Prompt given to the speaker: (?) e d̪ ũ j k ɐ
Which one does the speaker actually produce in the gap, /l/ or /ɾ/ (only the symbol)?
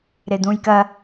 ɾ